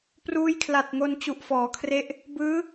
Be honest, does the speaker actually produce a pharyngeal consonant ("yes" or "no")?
no